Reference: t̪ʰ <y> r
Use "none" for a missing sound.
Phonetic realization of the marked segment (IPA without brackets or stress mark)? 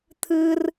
ɨ